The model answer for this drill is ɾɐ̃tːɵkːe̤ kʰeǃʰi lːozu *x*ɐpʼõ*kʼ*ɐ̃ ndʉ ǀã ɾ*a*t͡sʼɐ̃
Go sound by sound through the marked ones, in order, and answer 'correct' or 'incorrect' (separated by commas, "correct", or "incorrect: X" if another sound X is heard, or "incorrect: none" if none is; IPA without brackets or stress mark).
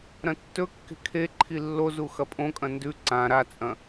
correct, correct, correct